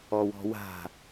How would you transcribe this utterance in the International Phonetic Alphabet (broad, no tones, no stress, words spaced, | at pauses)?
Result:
ɔwɔ̤wa̤